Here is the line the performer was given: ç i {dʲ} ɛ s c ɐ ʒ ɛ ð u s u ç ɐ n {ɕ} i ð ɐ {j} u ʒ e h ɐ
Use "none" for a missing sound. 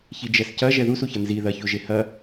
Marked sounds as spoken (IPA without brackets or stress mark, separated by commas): d͡ʒ, z, ç